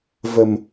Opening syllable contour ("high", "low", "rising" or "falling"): low